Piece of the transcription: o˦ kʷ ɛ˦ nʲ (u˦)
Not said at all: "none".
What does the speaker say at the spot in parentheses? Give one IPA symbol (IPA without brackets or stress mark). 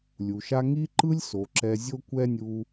u˨